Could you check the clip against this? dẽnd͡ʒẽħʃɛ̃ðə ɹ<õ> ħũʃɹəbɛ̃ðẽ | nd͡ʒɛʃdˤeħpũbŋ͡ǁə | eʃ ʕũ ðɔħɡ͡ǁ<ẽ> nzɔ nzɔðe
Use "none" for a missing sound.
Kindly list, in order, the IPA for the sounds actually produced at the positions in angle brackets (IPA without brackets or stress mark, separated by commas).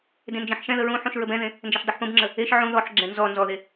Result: ũ, ɛ̃